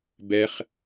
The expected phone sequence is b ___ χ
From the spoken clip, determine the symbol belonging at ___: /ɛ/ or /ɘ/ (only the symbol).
ɛ